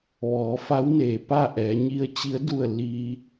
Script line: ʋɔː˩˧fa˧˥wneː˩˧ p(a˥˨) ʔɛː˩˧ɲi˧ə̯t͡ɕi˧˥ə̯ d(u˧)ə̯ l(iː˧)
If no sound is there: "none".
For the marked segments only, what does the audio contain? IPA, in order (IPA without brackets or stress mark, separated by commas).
a˥˨, u˥˨, iː˧